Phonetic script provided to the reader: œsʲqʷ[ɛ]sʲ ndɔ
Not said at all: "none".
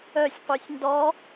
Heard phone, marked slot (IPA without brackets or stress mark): œ